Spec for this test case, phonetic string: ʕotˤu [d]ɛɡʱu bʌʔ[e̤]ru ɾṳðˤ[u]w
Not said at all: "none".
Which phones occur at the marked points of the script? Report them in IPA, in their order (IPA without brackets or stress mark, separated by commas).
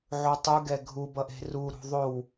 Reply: ɡ, e̤, o